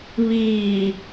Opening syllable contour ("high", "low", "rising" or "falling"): low